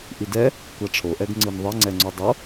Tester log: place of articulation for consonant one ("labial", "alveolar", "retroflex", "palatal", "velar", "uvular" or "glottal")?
glottal